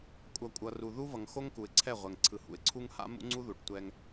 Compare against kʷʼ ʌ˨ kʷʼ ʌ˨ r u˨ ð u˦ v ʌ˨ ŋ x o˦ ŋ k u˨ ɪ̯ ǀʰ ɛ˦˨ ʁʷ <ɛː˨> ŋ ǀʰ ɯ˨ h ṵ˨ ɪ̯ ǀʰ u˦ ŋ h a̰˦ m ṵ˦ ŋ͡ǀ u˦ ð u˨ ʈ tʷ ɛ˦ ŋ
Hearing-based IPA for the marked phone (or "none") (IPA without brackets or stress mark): ɛ˨